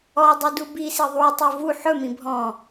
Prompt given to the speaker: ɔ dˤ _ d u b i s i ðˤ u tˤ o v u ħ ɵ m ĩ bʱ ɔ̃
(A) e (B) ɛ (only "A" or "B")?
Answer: A